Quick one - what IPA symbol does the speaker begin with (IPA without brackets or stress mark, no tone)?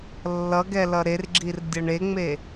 lː